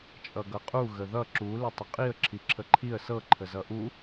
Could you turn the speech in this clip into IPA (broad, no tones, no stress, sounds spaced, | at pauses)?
t͡ʃʼ ʌ ɡ ʌ qʼ u ɣ ə ð ʌ ǁ u l ɪ tˤ ə qʼ i ə̯ ǁʰ i ǁʰ ə ǃʰ i ə̯ s ɤ ǃʰ ə z ʌ ʔ u